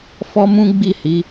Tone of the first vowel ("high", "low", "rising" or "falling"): high